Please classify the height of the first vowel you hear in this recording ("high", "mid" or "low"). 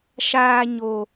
low